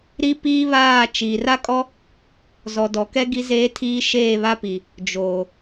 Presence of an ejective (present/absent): present